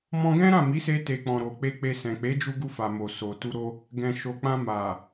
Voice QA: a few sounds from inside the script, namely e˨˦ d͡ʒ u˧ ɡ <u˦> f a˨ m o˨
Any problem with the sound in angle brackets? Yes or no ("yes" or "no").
yes